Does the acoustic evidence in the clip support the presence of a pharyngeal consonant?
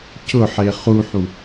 yes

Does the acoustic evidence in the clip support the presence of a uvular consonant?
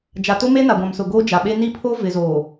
no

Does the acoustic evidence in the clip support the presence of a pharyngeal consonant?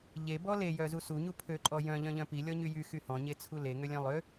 no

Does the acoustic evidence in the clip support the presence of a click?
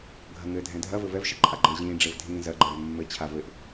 yes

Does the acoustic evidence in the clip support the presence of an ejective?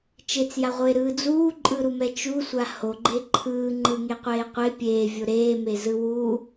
yes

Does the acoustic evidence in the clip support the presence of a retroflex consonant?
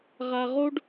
yes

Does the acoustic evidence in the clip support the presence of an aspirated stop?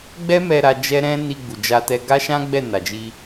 no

